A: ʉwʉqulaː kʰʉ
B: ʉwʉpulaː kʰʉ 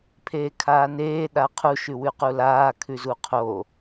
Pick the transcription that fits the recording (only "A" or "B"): A